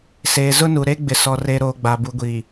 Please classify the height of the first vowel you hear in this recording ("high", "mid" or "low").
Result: mid